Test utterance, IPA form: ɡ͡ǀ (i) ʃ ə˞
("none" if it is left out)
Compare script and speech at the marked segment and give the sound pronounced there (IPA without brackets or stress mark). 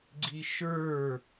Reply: i